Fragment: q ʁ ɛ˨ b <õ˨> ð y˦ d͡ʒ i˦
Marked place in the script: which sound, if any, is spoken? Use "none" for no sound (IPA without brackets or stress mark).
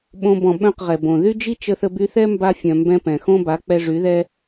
õ˨